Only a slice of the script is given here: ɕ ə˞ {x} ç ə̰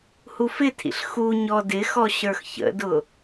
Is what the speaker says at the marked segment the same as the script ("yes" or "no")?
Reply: yes